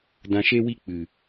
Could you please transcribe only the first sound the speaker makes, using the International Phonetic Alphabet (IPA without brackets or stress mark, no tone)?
d